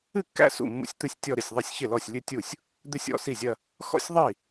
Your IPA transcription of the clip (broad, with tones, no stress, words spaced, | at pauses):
ɨ˥˩kːæ̰˥˧ sṵ˥˩mːṵ˥˧sʲt̪ɨ˥˧sʲ tʲɔ˥˧ɾɪ˥˩sʲðˤi˥˩sʲ çɪ˥˩lɔ˥˩sʲlʲɨ˥˧tʲu˥˩sʲ | d̪ɪ˥˧sʲɔ̰˥˩si˥˩zʲɐ˥˧ | xɔ̰˥˧sʲ ðˤi˥˩